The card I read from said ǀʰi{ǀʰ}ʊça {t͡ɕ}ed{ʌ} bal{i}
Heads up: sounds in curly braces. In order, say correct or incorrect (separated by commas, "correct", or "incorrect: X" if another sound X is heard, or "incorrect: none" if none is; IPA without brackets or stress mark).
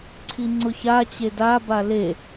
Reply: incorrect: ŋ͡ǀ, correct, incorrect: a, incorrect: e